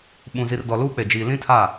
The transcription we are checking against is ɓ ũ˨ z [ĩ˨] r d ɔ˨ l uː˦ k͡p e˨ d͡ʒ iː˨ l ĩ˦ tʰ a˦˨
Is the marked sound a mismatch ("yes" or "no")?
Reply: yes